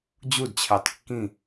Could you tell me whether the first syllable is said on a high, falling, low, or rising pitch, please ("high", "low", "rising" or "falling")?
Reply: falling